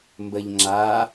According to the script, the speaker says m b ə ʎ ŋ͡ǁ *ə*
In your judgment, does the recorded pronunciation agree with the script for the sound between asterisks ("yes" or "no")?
no